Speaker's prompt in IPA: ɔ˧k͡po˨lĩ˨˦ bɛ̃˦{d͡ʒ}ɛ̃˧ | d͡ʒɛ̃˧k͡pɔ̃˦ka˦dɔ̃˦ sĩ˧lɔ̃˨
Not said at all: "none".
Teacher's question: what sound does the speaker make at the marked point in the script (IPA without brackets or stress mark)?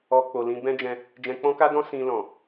d͡ʒ